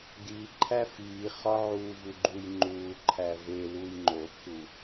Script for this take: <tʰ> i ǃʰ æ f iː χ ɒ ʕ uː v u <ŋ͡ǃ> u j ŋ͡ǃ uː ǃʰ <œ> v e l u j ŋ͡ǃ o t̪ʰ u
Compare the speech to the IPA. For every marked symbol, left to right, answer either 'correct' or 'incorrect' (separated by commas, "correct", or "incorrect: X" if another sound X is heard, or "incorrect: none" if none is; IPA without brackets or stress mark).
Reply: incorrect: d̪, incorrect: ɡ͡ǃ, incorrect: æ